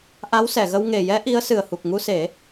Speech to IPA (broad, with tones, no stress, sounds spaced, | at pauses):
ʔ a˧˥ w s ɛ˨˩˨ ɣ ə˧ w ŋ e˨˩ j ɛ˧˥ ʔ i˧˥ ə̯ s ɨ˨˩ ə̯ h u˨˩ k̚ ŋ u˧ s e˨˩˦